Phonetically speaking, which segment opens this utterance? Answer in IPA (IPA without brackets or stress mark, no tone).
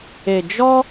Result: e